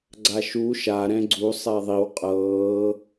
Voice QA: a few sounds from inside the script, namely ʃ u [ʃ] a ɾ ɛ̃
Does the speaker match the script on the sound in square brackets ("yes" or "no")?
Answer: yes